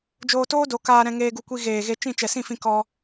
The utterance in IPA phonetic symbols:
d͡ʒoː˧toː˦do˨˦ kaː˧ ɾɛ̃˧ŋeː˧ɡu˧kʷi˧ ɣeː˨ ɣe˧t͡ʃĩ˦˨ t͡ʃɛ˨sĩ˦˨fĩ˧ kɔ˧

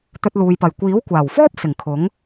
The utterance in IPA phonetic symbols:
t̪ɵ˧t̚luː˨jpɐ˨˩j kʷiː˨˥wkʷaː˨˩wfɔː˥p̚ sɪ˨˩ŋkʰʊ˨˥ŋ

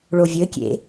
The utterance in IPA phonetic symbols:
ɭovʲɘkʲḛ

